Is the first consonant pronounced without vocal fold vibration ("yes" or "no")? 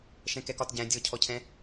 yes